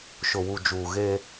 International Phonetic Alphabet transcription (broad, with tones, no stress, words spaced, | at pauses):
ʃʊ˨wu˨d͡ʒuː˨ ɣe˦